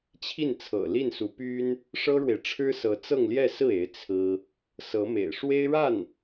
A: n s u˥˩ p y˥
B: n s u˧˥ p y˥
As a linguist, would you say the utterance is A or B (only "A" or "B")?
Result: B